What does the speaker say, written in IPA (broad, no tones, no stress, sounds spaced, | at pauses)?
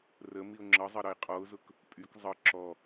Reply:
r ə m i ʊ̯ ŋ͡ǁ ʌ zˤ ʌ ɾ ʌ ɪ̯ qʼ ɔ ʊ̯ z ʊ k | pʼ y k zˤ ʌ ǁ ɔ